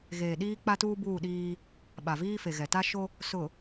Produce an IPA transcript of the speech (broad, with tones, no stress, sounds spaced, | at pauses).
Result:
ɣ eː˨ ɗ iː˦ k͡p a˦ t uː˦ b uː˦˨ ɗ iː˦ | ɓ a˨ v iː˦ f e˨ ɣ ɛ˨ t a˦ ʃ o˦ | s ʊ˨